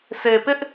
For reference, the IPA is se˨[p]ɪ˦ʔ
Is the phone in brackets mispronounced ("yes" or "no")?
no